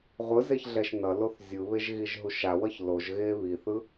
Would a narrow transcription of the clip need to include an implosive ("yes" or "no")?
no